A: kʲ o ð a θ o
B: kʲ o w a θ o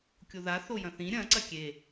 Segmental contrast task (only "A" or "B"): A